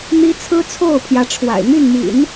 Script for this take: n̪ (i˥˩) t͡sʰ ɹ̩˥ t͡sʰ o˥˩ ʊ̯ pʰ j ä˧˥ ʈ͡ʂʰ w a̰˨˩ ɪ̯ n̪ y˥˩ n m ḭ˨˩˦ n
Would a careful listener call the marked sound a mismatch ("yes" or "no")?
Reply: yes